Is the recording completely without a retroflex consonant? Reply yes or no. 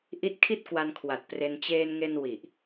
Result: yes